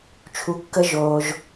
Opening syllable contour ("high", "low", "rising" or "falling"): low